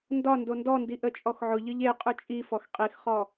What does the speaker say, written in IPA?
n d ɒ n d o n d ɔ n d i ʔ ə t͡ʃʼ ɔ x ʕ ʊ ʎ ɨ ʎ e qʼ ʊ t͡ʃʼ i f ɔ x qʼ i x χ ɔ

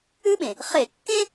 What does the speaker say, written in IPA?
ʉ˥ ɓ ẽ˩ | χ e˧˩˧ kː ẽ˥

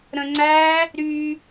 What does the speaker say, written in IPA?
ɾ ə̃ ŋ͡ǀ æ | ɾ y

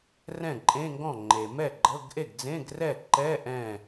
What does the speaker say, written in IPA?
r ɛ̃˥˩ ǃʼ ẽ˧˥˧ ŋ ɡ ɔ̃˥˩ ŋ͡ǃ e˩ m ɛ˥˩ ɡ͡ǃ ɤ˧˥˧ ɡ ʔ e˥˩ ɡ d͡z ẽ˧˥˧ ɡ r ɛ˥˩ ǃ ɛ˧˥˧ ʔ ɛ̃˥˩

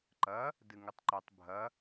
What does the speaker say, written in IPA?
ǃ ɐ | d ɨ ŋ ɨ tˤ ǃ u tˤ bʱ ɐ

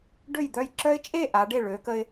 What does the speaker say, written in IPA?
ɖ ø˥˩ j d̪ œ˥˩ j ǁ œ˦ ɪ̯ t͡ʃʼ e˥˩ ʔ a˨˦ ɖ e˥˩ ɭ ø˨˦ k ə˦ ɪ̯

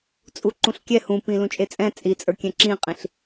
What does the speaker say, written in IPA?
t͡sʼ u ǃ ũ ɬ kʲ ɛ h ũ p ĩ l ũ t͡ʃʼ e t͡sʼ ɛ̃ t͡sʼ i t͡sʼ ə˞ kʲ ɛ̃ ǁ ĩ qʼ ĩ ɬ

